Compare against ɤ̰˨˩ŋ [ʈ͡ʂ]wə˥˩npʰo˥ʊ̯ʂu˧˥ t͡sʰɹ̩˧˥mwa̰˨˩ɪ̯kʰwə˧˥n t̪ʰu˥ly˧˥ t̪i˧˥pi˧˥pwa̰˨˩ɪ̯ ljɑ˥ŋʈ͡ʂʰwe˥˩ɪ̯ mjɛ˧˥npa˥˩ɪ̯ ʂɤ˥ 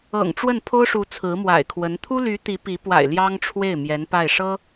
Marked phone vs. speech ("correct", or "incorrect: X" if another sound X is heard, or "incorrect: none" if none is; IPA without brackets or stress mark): correct